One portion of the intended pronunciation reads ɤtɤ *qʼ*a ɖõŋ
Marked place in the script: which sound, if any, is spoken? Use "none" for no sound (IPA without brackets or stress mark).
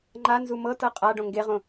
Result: qʼ